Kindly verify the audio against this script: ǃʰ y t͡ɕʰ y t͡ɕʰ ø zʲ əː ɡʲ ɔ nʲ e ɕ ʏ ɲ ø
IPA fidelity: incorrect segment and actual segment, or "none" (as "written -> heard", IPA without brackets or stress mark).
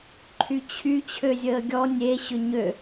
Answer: none